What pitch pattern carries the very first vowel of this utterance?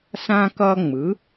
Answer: high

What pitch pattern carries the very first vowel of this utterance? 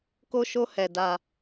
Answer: high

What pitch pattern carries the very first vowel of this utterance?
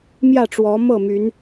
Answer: falling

